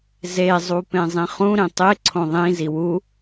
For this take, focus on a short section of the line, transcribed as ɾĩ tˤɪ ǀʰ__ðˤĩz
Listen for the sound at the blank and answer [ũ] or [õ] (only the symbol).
õ